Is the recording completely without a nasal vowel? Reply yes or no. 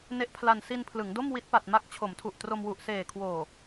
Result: yes